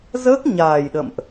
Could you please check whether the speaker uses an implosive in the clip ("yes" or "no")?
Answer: yes